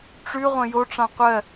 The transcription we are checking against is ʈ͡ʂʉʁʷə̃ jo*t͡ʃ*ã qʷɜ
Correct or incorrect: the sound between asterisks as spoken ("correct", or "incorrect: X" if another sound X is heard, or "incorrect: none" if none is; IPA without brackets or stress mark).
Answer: incorrect: ʈ͡ʂ